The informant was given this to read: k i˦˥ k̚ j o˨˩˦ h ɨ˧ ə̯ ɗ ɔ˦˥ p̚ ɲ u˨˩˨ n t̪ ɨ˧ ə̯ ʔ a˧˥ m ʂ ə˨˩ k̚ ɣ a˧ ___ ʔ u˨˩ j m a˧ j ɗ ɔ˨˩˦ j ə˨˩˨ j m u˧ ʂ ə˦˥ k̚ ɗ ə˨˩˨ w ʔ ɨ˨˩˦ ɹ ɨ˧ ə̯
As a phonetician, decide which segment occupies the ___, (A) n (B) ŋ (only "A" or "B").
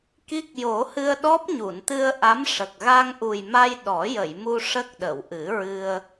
B